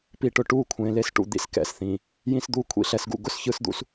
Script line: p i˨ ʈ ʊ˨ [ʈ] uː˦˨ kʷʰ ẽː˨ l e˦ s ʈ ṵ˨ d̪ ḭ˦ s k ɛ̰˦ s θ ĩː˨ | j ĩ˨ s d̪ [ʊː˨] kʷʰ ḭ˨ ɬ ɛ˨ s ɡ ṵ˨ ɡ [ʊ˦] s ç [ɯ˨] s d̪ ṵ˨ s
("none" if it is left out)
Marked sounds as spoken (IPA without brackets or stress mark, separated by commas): ʈ, uː˨, ʊ˦, ɯ˨